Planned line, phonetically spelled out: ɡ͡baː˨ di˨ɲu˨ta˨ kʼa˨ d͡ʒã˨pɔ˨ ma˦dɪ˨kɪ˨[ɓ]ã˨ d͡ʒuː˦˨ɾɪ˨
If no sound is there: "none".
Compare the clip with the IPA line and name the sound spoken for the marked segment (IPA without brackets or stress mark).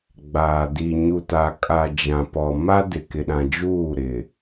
ɗ